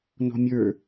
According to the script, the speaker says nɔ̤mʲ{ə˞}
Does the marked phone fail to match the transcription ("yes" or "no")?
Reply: no